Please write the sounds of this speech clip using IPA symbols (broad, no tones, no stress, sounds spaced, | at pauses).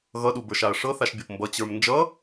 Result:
ɣ ʌ ɗ u b ə˞ ʃ a ɐ̯ ʂ ɤ θ a ʃ bʲ ɤ p m b ʌ t͡ɕ ə˞ m n d͡ʒ ʌ